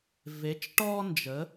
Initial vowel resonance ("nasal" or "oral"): oral